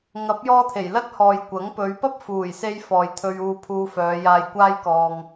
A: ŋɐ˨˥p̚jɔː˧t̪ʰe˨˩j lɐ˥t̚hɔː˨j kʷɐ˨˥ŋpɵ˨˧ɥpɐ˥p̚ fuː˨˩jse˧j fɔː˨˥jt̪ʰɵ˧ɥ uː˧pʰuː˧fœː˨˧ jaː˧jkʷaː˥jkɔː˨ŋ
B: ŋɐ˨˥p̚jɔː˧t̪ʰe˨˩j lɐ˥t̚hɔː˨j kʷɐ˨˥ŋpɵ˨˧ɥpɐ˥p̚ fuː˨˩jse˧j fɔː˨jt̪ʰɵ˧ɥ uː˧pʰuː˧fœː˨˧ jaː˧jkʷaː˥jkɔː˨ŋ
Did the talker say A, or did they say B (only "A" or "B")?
B